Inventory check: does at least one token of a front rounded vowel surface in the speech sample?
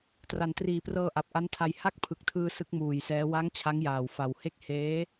no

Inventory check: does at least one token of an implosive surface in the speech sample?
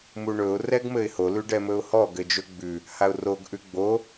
no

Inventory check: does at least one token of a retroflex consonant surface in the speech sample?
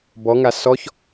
no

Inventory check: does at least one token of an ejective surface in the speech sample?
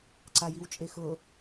yes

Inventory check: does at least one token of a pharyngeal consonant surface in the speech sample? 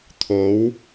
no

